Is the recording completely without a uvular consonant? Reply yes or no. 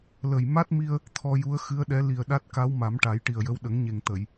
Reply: yes